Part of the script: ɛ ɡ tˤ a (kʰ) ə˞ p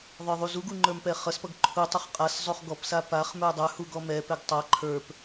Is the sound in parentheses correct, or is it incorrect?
incorrect